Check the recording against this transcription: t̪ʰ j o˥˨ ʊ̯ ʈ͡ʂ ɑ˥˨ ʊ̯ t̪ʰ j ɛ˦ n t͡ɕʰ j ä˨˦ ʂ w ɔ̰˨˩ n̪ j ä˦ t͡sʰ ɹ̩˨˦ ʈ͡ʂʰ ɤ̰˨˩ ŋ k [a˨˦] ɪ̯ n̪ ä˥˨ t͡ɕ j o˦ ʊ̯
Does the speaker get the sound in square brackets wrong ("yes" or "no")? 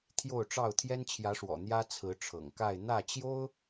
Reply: yes